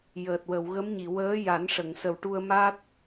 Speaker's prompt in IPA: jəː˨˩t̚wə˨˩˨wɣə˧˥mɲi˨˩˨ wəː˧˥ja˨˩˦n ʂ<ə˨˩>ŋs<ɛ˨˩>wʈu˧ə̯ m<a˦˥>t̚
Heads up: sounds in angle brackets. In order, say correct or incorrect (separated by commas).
incorrect, incorrect, correct